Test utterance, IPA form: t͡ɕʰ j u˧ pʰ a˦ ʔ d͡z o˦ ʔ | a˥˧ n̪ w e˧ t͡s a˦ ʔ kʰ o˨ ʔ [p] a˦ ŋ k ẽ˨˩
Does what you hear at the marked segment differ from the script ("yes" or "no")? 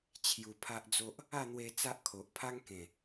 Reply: yes